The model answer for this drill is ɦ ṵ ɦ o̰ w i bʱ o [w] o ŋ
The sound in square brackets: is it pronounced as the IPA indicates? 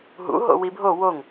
yes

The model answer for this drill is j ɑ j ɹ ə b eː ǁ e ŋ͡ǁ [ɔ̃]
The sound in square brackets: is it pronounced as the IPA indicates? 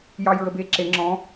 yes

